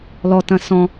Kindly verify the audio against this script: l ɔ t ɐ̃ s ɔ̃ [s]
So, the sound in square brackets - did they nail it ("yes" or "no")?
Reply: no